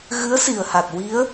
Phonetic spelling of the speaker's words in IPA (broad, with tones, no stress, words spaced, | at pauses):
ɣɨ˧˥ə̯si˨˩ə̯ha˨˩t̚ wi˧˥ə̯